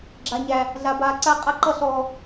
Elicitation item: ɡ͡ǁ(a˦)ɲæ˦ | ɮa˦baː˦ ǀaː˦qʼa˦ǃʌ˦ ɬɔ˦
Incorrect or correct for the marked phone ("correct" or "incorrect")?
correct